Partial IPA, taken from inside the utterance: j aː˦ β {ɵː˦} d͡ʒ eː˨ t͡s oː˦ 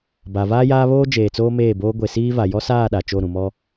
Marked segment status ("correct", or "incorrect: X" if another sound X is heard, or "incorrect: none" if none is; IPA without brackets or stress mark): incorrect: oː˦